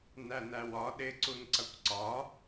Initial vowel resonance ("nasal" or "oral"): oral